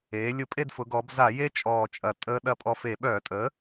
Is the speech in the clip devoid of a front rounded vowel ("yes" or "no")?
no